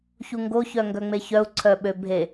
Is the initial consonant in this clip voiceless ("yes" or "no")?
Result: yes